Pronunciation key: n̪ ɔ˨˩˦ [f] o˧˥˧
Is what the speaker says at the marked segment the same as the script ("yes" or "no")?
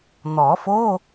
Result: yes